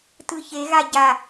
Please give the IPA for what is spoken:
t ɯ ç e ɣ a ɟ a

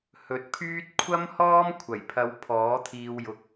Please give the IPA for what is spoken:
h ɵ˨ t̚ pʰ yː˥ t̚ kʷʰ ɐ˥ m h ɔː˥ m kʷʰ ɐ˨˩ j pʰ ɐ˨˧ w pʰ ɔː˨˥ t̪ʰ iː˧ w j ʊ˧ k̚

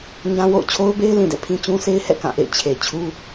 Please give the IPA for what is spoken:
ɲ ã˦ w o̰˦˨ ʊ̯ t͡ɕʰ o˦ ʊ̯ b e˦ ɪ̯ l ĩ˨ d ɛ̰˦˨ pʰ ĩ˦ t͡ɕ ũ˦ sʰ e˦ ɪ̯ h ɛ̰˦˨ k ã˦˨ ʔ ḛ˦˨ ɪ̯ t͡ɕʰ e˨ t͡ɕʰ u˦

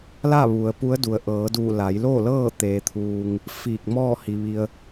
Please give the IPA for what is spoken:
l a˥˨ ʋ u˩ ə̯ p u˧˥ ə̯ d u˩ ə̯ ʔ ɤː˩˧ d uː˧˩ l a˩˧ j l oː˥˨ l ɤː˥˨ t̪ eː˩ t̪ʰ uː˩ ŋ | f iː˧˩ k̚ m ɔː˥˨ h i˩ ʋ i˩ ə̯

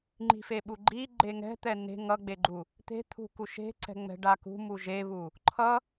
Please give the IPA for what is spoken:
ŋ͡ǃ i̤ f e ɓ u ɡ͡ǃ i ɡ͡ǃ e ŋ ɛ̤ t̪ ɛ n e̤ ŋ ʌ ɡ͡b e ɡ͡ǃ u | t̪ e̤ t̪ʰ ṳ k u ʃ e̤ ǀ ɛ̤ ŋ͡m ɛ̤ ɖ a k ṳ m u ʒ e β u | ǃʰ ʌ

